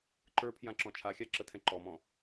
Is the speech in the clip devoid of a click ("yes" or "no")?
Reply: no